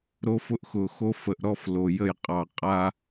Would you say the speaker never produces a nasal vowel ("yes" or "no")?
yes